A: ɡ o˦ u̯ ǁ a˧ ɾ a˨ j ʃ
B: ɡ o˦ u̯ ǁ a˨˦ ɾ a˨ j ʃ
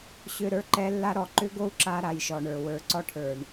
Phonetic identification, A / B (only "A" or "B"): A